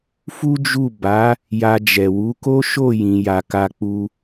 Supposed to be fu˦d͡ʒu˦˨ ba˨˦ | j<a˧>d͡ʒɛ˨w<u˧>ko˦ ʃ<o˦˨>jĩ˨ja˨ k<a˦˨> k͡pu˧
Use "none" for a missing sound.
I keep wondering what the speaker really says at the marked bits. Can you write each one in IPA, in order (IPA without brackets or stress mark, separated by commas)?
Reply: a˧, u˨˦, o˦˨, a˨